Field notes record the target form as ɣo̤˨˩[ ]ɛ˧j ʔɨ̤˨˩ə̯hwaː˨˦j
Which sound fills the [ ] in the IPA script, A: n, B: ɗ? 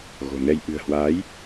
A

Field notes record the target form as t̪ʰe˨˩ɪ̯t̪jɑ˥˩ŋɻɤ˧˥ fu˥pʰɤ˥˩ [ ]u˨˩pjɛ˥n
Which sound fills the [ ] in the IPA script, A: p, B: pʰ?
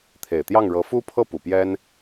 A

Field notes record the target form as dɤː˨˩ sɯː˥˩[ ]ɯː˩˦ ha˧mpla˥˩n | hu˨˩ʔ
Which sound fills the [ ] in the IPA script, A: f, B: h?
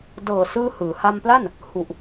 B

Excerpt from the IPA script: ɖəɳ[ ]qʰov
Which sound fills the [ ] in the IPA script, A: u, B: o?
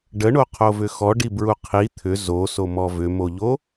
B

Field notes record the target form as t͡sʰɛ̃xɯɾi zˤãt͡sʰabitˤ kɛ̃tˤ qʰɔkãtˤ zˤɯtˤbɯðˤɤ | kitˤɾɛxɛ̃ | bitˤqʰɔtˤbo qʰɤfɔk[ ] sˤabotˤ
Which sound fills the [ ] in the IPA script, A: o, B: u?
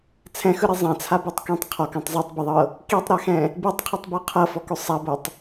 A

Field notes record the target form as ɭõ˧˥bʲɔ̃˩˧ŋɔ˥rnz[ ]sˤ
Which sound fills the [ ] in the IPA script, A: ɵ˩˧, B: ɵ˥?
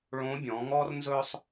B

